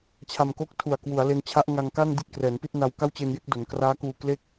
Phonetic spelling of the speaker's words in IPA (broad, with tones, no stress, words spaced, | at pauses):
t͡ɕʰa˧mko˥˩k̚ tʰu˨˩a̯kwu˩˦a̯le˧n t͡ɕʰa˦˥ʔŋa˧ŋka˥˩ndi˦˥t̚ krɛː˩˦npi˥˩t̚na˧w ka˥˩wt͡ɕe˧nje˥˩k̚ do˩˦nkraː˦˥kuː˧kle˥˩k̚